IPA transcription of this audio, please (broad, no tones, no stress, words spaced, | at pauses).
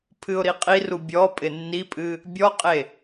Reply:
pʰɨʊ̯ɾiqʼiru bʲɔpʼɪ nːipʼɨ | bʲɔqʼe